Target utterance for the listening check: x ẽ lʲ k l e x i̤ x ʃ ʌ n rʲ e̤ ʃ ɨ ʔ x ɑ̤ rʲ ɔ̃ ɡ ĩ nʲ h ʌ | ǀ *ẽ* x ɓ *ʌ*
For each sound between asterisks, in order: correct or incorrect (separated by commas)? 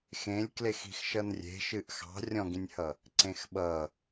correct, correct